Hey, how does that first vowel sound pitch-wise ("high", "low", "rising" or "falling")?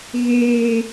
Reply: high